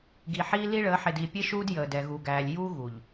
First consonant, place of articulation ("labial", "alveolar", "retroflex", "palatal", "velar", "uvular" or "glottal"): velar